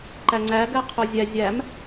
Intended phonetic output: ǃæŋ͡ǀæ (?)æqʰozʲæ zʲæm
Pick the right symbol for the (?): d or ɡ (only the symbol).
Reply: ɡ